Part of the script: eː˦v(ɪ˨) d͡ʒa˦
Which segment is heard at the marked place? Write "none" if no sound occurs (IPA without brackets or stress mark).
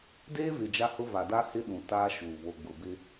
ɪ˨